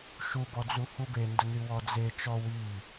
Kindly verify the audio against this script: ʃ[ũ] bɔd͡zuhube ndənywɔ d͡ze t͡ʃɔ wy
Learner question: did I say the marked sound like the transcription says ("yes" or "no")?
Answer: no